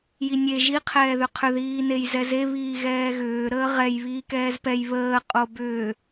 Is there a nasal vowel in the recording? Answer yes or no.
no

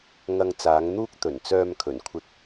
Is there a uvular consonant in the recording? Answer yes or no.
no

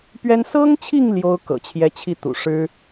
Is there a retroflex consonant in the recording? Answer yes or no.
yes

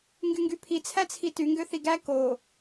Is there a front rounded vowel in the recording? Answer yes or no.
yes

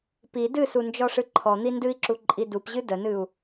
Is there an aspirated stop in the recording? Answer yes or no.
yes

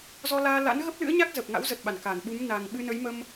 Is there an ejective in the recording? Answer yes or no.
no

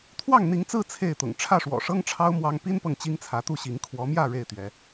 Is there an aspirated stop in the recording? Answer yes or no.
yes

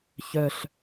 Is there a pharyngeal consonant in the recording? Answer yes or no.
no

